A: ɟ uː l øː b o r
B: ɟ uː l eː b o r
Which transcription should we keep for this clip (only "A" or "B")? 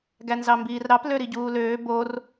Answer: A